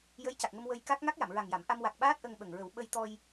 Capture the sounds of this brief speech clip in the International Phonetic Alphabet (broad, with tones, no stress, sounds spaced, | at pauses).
j ə˧˥ j c a˨˩ k̚ ŋ ə˧ m w ə˧ j k a˦˥ k̚ ŋ a˦˥ k̚ j a˨˩˨ m ɹ a˨˩ ŋ j a˨˩˨ m ʔ a˧ m w a˨˩ k̚ ɓ aː˦˥ t̚ ʔ ə˧ ŋ ɓ ə˨˩ ŋ ɹ ə˨˩˦ w ɓ ə˧ j t̪ ɔ˧ j